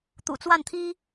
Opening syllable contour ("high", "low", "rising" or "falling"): low